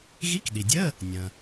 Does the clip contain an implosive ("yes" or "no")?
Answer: yes